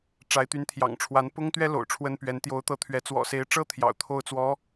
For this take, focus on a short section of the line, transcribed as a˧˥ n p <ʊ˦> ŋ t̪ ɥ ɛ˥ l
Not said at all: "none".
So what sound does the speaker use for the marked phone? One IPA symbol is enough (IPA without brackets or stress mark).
ʊ˥